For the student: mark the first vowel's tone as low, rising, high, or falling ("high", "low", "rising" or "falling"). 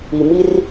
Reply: low